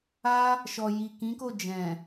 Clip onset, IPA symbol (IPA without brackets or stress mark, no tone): a